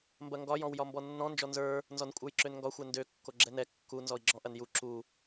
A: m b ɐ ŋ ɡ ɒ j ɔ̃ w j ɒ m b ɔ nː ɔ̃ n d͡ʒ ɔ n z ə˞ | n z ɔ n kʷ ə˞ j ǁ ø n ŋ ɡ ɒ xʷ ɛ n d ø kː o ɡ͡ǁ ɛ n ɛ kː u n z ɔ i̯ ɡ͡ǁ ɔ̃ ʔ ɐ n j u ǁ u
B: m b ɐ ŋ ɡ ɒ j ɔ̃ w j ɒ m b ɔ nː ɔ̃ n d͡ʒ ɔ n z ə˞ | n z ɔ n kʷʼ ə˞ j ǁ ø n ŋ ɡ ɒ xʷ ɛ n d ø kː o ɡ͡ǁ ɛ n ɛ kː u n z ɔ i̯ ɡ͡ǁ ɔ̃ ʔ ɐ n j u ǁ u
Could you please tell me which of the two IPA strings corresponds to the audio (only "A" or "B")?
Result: B